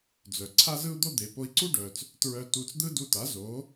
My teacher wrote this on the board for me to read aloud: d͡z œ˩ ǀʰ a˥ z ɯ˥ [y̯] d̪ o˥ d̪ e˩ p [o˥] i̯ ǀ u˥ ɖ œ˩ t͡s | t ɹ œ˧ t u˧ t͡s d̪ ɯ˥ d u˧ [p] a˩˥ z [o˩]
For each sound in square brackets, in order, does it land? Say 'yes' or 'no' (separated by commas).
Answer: no, no, no, no